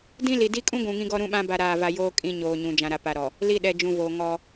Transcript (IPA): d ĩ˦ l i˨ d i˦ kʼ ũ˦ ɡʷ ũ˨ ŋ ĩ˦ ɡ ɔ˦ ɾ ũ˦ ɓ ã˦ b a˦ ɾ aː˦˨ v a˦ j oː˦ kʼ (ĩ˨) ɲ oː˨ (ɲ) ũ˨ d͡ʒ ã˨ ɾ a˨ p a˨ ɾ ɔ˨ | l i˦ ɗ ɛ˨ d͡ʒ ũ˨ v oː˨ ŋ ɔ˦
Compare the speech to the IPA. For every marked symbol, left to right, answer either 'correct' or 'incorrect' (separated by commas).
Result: incorrect, correct